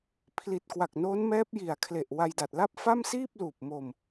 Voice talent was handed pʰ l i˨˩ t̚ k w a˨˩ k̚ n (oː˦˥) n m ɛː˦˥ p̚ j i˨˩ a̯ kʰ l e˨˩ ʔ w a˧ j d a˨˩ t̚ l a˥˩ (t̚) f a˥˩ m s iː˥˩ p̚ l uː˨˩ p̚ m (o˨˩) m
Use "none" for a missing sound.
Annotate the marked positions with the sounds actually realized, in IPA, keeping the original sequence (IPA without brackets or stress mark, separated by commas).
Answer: oː˦˥, p̚, o˨˩